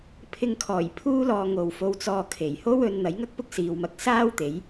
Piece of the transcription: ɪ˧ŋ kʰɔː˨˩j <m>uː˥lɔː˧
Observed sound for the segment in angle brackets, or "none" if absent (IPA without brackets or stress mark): pʰ